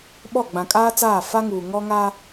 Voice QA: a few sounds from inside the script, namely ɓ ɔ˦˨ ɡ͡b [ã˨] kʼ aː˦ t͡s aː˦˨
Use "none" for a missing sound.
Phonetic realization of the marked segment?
ã˨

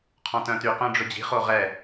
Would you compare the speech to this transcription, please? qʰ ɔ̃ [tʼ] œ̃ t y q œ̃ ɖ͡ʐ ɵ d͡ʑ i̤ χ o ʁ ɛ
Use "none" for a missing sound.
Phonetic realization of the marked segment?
t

